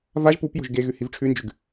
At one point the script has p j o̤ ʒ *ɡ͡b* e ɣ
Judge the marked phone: incorrect: ɡ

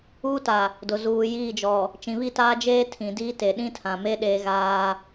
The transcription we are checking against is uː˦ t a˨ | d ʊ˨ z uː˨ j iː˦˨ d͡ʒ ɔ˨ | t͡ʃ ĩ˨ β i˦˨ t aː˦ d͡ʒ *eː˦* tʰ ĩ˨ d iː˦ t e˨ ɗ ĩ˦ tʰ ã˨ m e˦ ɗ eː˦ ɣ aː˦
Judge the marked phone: correct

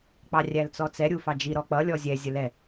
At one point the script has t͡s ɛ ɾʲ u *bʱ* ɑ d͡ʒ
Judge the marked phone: incorrect: f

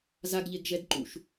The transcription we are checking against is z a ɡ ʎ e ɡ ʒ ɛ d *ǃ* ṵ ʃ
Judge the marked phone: correct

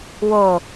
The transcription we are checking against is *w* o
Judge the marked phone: correct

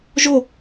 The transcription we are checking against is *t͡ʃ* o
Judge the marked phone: incorrect: ʒ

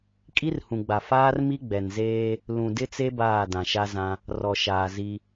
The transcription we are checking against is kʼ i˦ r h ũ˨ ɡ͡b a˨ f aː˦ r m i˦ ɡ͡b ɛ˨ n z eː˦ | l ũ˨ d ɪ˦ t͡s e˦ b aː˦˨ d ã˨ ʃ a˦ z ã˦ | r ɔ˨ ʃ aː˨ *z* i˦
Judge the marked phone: correct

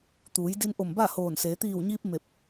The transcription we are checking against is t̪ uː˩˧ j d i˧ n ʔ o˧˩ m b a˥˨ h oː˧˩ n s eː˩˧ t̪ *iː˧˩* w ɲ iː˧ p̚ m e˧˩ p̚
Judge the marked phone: correct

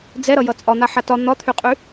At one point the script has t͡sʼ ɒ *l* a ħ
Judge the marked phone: incorrect: n̪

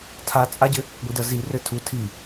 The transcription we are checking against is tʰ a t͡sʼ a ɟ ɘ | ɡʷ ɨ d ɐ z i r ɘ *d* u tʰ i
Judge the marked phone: incorrect: tʰ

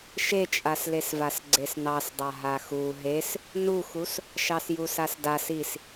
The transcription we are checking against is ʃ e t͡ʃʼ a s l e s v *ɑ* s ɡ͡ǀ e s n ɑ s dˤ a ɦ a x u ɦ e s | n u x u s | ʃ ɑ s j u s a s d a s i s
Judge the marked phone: incorrect: a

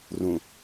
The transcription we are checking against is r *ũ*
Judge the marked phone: correct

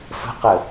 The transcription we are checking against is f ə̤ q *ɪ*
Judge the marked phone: incorrect: ə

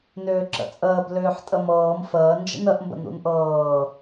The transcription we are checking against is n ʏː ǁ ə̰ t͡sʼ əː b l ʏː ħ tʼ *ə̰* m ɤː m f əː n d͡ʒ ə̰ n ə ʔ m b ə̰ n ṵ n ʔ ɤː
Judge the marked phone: incorrect: ə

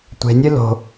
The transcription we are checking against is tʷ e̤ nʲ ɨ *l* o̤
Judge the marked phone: correct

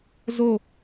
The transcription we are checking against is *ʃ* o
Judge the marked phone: incorrect: z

